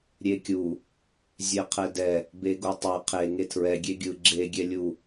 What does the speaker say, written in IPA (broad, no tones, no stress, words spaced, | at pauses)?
ɾʲekʲu | zʲeqʰɛdɛ | beɡotˤɛ qʰe ŋetʰɹɛ ɡʲeɡʲɯ ɡ͡ǁe ɡʲɛlʲu